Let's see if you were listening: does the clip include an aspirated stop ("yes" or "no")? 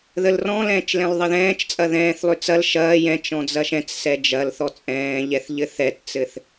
no